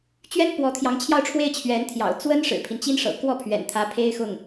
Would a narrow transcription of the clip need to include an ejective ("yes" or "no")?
no